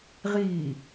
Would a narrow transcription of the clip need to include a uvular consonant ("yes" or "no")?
yes